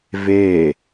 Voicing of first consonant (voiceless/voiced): voiced